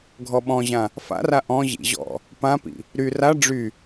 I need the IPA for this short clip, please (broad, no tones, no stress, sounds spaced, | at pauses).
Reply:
ɡʱ ɔ ɓ ɔ̃ ʑ ã | f a̰ r a ʔ ɔ̃ ʑ ḭ ʑ ɔ̰ | p ã p ḭ | ɾ y r a ɖ͡ʐ y